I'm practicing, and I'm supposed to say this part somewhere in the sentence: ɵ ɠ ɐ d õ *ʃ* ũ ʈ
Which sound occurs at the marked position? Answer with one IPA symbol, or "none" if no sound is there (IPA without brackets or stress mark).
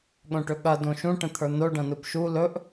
ʃ